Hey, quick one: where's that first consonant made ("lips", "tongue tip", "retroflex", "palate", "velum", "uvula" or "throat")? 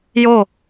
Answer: palate